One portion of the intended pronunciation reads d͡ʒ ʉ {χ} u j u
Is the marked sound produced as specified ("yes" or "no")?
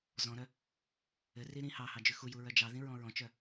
no